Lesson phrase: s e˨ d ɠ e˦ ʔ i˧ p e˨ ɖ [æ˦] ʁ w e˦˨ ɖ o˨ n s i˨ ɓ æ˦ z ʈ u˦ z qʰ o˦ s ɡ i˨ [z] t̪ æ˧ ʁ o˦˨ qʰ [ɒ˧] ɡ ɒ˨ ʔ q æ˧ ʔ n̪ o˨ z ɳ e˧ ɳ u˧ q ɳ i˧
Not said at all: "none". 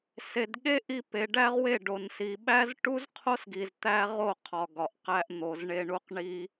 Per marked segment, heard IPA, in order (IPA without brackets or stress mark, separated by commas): æ˦, z, ɒ˨